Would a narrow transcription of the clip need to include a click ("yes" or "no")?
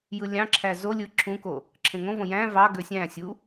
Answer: yes